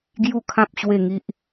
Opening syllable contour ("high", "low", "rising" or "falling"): falling